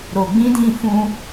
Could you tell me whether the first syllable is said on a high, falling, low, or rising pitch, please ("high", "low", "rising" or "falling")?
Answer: low